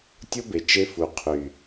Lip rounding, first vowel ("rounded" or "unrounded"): rounded